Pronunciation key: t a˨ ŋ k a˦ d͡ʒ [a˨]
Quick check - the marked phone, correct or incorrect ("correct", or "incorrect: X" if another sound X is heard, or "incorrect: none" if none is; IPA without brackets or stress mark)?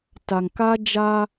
incorrect: a˦